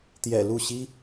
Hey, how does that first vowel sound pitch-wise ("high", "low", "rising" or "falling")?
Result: low